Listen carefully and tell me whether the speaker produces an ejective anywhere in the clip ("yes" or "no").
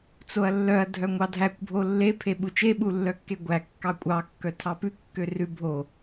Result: yes